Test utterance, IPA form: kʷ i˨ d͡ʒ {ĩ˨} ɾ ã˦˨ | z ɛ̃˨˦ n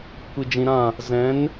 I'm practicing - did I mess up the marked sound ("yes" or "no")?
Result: no